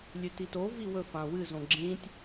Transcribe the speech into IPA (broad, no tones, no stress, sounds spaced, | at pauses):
lʲ ʉ t i t o v i w ɵ f ã w ɨ z õ ɡ͡ǁ ĩ tʲ